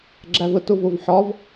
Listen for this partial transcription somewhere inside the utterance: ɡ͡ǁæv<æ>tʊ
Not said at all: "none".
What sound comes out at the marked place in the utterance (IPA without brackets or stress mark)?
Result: ə